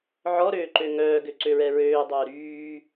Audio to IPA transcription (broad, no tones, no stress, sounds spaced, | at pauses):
ʕ ɔ ɾ øː ǃ ø ŋ œː ɡ ø ǀ ø ɹ ɛ ɹ øː dˤ œː ɾ yː